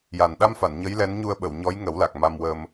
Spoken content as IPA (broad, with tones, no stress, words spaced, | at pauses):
ja˨˩nɗa˧mfa˨˩˨n ɲə˧˥jlɛ˧˥nɲu˧ə̯ɓə˨˩˨w ɲɔ˧˥jŋə˨˩˦wla˨˩k̚ ma˧mwə˧m